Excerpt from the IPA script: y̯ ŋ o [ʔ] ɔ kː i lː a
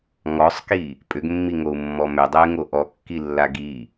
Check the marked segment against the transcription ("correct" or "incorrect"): correct